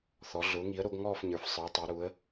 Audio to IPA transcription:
θ ɔ˩˧ ɮ ʊː˩˧ ŋ i˩˧ ə̯ ɾ o˩˧ ɡ ŋ ɔː˦˨ f ɲ ə˞˩˧ f sˤ ə˞˩˧ tˤ e˩˧ ɾ uː˩˧ ə̯

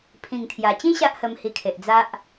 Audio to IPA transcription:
pʰ ĩ˨˩ ŋ t̪ʰ j a˨˩ t͡ɕ ĩ˦ ɕ a˦ ʔ h ə˧ m h i˧ kʰ e˨ ʔ d͡z a˦ ʔ

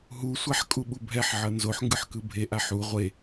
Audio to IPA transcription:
ɦ u sʷ a ħ kʼ u ɓ u bʱ ɛ ħ ʕ ʌ n z o ħ ŋ ɡ ɯ ħ k ɯ bʱ e ʔ a ħ u ʁʷ e

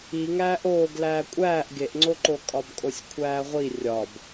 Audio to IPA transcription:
i ŋ æː ʔ oː ɡ l æː kʷʼ æː ʔ ɡ e ʔ ŋ͡ǀ o ǃ o kʼ ɒ b kʼ o sʲ kʷʰ æː ʁʷ i rʲ ɒ b

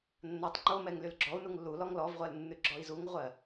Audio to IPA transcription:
nː a tˤ ŋ͡ǃ o m ɛ ŋ l y l ɡ͡ǁ ɔ u̯ n u ŋ lː u l ɔ ŋ l ɔ v ʁʷ ɜ l nː ʉ ɡ͡ǁ ɔ i̯ z u ŋ ʁʷ ɜ

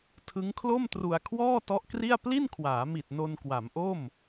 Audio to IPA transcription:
tʰ ɯ˦˥ ŋ kʰ l o˥˩ m t r u˧ a̯ kʰ w ɔː˥˩ t ɔ˦˥ ʔ k r i˥˩ a̯ p l i˥˩ n kʰ w aː˩˦ m i˨˩ t̚ n o˧ n k w a˩˦ m ʔ o˥˩ m

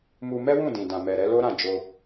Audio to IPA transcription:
m u˧ m ɛ˦ w ũ˦˨ d ĩ˨ d ã˨ m ɛ˨ ɾ ɛ˧ l o˦ ɾ ã˦˨ d͡ʒ o˧

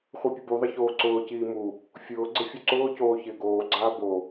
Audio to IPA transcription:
χʷ i pʲ ʊ b u ðˤ ɪ ç oː ǀ ʊː c iː m u | fʲ ʊː ɡ͡ǀ ɪ fʲ u ǀ ʊː c oː ç ɪː ɡ oː ɡ͡ǀ aː b o

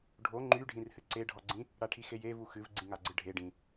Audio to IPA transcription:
ɖʱ o ŋ͡ǃ y ɖʱ ĩ r h ɨ ǀ e ɖʱ ɔ ɡ͡ǀ ĩ | ɽ a ʈʰ i x e j e v u x ɨ v ɡ͡ǀ ĩ ŋ a ɡ͡ǀ ɨ ɖʱ e ɖ ĩ

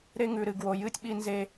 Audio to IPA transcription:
ɾ e˦ ŋ ʉ˨ ɾ ɨ˨ ɡ w o˨ j ɨ˦ tʲ ɓ i˦ n z e˦

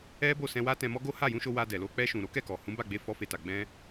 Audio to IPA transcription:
ɛ˦ b o˦˨ s ɛ̃˧ w a˦ t ɛ̃˧ m ɔ˦ ɡ o˦ h a˦˨ j ũ˧ ʃ o˧ w a˧ d ɛ˨ l o˧ k͡p ɛ˧ ʃ ũ˨ ɾ o˨˦ k ɛ˦˨ k ɔ˨ h ũ˨˦ b a˦˨ ɡ͡b e˧ f ɔ˦ f e˧ t a˨ ɡ͡b ɛ̃˧

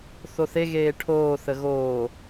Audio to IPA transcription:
θ o θ e ɣ eː ʈʰ oː θ ə ɣ oː

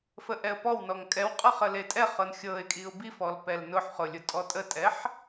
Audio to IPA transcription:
f ə ʔ ɛ ə̯ p ɔ w n ɔ ŋ kʼ ɛ w qʼ ɤ χ ə l e tʼ ɛ χ ɤ n xʲ ɤ ɪ̯ kʼ i ʊ̯ b i f ɔ l p ɛ l n ʊ ħ χ ʊ lʲ ʊ tʼ ɔ tʼ ə tʼ ɛ ħ

